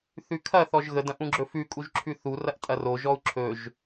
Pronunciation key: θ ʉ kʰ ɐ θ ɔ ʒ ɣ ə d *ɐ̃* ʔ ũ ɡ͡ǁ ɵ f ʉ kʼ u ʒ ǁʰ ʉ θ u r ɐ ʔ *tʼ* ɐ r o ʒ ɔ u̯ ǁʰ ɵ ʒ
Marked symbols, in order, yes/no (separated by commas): yes, yes